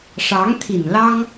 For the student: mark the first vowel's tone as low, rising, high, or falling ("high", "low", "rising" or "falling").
rising